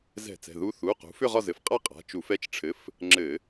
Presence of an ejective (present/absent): present